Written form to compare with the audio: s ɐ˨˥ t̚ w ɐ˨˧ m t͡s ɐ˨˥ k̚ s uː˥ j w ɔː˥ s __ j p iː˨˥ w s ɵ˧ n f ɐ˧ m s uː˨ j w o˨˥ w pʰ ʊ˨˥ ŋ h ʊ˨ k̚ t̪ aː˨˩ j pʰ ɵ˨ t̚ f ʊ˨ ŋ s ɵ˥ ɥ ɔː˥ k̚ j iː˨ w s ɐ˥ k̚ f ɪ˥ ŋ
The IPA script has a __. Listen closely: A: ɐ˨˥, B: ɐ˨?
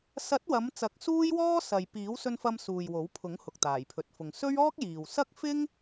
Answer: B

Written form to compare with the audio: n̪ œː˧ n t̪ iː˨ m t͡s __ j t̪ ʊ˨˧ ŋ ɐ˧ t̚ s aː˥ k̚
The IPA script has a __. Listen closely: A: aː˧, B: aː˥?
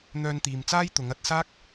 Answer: B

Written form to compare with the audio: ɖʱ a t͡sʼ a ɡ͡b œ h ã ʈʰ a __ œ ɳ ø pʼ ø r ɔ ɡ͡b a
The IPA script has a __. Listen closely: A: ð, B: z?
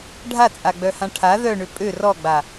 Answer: A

